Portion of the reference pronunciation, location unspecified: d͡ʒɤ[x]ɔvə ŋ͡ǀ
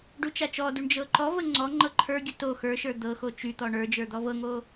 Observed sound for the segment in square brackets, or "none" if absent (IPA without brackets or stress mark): ǃ